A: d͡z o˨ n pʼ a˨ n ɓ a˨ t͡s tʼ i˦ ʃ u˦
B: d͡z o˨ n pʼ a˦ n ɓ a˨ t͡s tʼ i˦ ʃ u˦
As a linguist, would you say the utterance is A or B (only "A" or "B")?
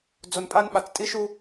B